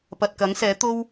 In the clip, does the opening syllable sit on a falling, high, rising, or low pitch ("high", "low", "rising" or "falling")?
low